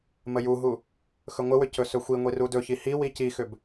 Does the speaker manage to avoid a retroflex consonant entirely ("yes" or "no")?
yes